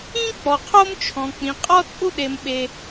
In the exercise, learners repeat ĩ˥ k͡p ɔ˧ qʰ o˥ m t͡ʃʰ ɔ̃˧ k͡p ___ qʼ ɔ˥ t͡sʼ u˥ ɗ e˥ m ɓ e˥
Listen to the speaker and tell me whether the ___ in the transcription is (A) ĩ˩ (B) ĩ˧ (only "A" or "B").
B